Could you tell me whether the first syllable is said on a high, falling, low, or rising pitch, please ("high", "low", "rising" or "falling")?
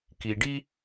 low